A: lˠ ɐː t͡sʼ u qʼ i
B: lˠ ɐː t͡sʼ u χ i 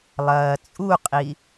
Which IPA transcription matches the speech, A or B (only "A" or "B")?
A